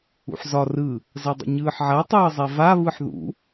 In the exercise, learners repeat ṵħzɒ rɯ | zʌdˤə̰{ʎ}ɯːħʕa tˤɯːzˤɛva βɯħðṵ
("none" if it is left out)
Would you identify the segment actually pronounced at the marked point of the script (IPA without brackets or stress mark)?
ɲ